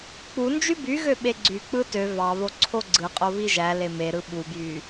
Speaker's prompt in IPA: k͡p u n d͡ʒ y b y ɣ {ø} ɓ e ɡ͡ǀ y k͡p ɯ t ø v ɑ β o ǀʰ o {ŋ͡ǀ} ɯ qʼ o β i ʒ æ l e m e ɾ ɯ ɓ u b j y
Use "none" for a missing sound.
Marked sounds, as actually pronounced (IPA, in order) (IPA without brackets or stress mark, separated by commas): ø, ɡ͡ǀ